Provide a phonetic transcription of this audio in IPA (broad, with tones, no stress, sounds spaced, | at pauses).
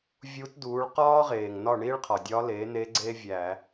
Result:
vʲ u˧˥ t d uː˩˥ ɭ q ɒː˥ ʁ eː˩ ŋ n ɒ˥˨ ɳ iː˥ ɭ qʰ ɒ˩ dʲ ɒ˧˥ l eː˩˥ n e˧˥ ɡ͡ǀ eː˥ vʲ æː˧˩˧